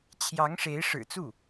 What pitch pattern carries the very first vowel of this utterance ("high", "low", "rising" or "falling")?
rising